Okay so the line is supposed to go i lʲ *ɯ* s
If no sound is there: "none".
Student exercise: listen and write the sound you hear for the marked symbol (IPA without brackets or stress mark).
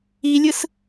ɯ